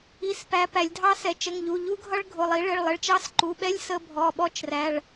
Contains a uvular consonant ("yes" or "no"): no